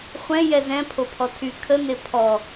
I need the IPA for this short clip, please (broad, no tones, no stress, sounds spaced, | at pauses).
χʷ ɛ̃ j ɛ z ɛ̃ pʰ o pʰ ɔ tʰ y kʰ ə n e pʰ ɔ